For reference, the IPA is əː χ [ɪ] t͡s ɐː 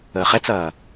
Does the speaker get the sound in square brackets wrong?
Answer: yes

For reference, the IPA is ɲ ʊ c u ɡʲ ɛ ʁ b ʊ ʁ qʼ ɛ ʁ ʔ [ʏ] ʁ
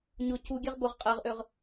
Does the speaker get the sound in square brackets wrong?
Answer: no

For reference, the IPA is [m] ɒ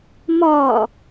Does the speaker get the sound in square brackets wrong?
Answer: no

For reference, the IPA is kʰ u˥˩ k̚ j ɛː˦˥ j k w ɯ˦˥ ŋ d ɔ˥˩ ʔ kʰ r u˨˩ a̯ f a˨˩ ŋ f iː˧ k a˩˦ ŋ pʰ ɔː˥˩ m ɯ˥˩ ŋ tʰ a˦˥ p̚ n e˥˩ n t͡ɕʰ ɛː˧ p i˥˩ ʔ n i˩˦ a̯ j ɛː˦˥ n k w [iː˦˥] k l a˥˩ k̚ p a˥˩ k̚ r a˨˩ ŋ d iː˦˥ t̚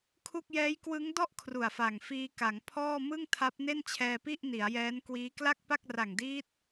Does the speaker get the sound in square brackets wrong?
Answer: no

